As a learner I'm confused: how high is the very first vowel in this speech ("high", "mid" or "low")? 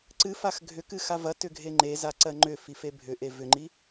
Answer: high